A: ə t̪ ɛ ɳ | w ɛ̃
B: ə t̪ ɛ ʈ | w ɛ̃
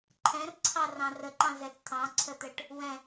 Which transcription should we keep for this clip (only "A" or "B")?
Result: B